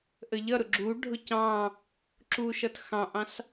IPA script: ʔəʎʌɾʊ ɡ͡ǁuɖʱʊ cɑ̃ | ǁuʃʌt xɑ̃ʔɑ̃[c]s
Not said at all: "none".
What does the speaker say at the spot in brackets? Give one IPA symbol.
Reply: none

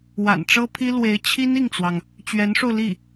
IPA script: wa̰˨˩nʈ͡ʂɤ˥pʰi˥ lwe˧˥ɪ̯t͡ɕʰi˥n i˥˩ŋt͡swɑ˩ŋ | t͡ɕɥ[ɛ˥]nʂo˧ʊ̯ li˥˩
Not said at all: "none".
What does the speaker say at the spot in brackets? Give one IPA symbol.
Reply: ɛ˧˥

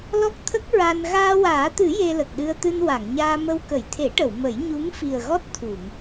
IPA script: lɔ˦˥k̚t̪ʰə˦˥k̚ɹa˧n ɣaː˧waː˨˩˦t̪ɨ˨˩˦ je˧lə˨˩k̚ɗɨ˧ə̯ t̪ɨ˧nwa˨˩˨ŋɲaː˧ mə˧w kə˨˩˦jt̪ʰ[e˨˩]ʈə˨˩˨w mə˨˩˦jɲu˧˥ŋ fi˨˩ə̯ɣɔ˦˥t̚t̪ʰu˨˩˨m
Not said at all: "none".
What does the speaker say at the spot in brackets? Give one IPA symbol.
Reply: e˨˩˦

